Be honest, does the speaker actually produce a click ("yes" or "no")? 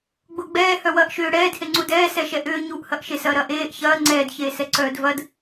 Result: yes